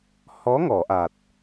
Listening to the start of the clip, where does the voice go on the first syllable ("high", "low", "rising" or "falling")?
rising